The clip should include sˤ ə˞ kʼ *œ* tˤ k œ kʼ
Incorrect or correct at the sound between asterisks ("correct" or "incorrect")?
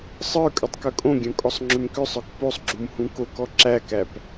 correct